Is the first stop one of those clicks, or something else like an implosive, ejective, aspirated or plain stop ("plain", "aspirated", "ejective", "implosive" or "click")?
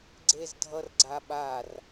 click